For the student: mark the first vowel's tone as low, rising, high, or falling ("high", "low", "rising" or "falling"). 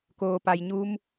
low